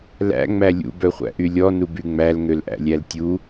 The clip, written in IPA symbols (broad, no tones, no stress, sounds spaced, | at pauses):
l æ̰ ŋ͡m æ lʲ ṵ b œ χʷ æ̰ ʔ y lʲ ɔ n u b y ŋ͡m æ l ŋ ø l ʔ æ̰ lʲ æ l tʲ u